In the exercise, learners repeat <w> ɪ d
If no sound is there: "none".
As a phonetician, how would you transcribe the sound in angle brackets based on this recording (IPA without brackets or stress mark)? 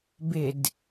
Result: b